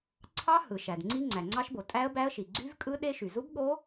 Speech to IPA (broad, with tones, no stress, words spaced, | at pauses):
ǀʰɑ˦˥ hɯ˩ʃæ˩dŋ͡ǀi˦˥ ŋ͡ǀæ˩ŋ͡ǀɑ˦˥ʃbo˩ tʼæ˦˥ə̯bæ˦˥ə̯ʃi˩ ɡ͡ǀy˦˥vkʼɯ˦˥ ɗe˦˥ʃy˩ zu˦˥bɠo˦˥